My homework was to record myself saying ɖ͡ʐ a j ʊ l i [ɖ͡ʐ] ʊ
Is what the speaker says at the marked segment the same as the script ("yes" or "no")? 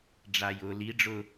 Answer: yes